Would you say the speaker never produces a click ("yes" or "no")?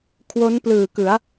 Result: yes